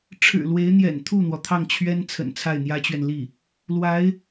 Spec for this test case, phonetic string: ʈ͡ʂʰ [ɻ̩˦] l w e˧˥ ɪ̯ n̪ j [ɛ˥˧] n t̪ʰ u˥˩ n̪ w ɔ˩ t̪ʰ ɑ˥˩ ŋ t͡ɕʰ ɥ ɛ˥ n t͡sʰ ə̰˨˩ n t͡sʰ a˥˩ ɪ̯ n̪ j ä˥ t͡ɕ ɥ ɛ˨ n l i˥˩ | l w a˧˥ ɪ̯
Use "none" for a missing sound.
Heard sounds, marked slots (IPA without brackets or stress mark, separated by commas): ɻ̩˨˩, ɛ̰˨˩